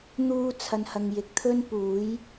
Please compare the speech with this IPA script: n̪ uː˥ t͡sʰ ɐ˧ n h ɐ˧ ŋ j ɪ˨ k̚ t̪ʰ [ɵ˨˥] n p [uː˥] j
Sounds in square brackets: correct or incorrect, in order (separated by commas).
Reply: incorrect, incorrect